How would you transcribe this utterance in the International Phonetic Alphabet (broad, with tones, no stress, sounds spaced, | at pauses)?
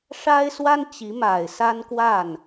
ʂ a˥ ɪ̯ s w a˥ n t͡ɕ i˧˥ m a˨˩ ɪ̯ s a˥ n k w a˥˩ n